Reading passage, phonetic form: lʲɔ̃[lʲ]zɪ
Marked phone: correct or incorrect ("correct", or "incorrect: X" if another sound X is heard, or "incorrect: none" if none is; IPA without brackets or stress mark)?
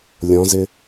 incorrect: none